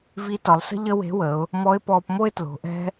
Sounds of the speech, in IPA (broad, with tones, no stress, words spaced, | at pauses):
vi˧˥tɒ˩˧lˠsə̤˥ ʎə˥we̤˧˥wə˩˧ʊ̯ | mɔ˧˥ɪ̯pɔː˧pmo˥ɪ̯ tlo̤˩˧ʔɛ̤˥